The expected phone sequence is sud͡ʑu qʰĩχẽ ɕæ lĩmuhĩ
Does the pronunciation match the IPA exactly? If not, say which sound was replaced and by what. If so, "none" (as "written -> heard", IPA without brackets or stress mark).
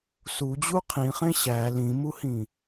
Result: none